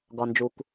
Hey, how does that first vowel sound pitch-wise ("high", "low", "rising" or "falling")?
low